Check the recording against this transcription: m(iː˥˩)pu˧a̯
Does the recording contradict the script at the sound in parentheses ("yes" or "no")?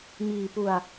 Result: yes